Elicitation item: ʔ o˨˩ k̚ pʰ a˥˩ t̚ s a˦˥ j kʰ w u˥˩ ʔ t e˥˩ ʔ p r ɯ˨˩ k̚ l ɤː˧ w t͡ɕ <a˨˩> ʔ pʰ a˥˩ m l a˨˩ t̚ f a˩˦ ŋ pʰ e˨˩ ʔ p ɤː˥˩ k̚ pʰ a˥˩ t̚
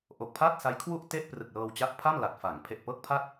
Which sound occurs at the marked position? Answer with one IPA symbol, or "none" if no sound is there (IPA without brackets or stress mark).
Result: a˦˥